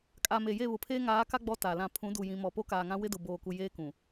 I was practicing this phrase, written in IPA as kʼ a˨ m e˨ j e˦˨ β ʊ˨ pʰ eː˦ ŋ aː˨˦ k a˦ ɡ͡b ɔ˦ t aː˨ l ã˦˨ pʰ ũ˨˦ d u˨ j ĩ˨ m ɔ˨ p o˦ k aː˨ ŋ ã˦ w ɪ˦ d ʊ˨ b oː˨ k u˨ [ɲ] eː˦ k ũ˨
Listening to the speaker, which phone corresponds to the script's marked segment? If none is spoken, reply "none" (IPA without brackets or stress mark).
j